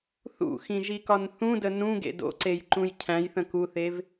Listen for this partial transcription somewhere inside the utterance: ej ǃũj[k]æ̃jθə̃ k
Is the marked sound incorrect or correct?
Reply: incorrect